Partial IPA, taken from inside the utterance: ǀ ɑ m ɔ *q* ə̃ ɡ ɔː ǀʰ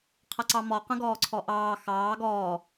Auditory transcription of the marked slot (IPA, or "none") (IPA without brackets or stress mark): q